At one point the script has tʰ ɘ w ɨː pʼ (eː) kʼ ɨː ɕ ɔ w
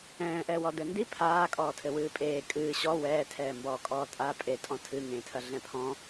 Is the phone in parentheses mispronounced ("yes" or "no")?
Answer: no